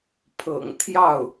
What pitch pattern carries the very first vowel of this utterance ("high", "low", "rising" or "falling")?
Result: low